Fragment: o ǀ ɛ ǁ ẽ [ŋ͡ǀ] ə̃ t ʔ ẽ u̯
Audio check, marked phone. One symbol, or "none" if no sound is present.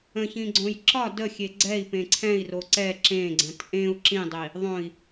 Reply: ɡ͡ǀ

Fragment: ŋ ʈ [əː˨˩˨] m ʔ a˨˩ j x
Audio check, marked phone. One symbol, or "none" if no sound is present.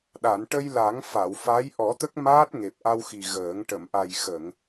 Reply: ə˨˩˨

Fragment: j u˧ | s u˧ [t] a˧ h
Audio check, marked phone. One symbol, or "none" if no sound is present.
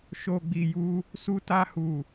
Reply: t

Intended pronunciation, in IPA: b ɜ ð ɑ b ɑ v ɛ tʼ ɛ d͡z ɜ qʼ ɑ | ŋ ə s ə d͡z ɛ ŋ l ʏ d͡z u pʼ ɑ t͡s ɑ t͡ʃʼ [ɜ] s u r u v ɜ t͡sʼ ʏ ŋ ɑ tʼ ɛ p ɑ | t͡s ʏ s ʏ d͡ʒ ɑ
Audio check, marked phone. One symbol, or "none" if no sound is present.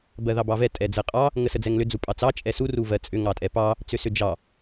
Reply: ɛ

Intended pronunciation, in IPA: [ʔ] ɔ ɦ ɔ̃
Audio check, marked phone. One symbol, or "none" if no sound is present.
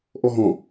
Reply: ʔ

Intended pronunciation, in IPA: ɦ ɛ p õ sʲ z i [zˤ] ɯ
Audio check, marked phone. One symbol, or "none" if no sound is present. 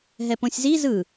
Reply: z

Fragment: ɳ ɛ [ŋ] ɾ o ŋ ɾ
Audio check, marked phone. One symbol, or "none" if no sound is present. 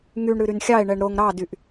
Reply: ɳ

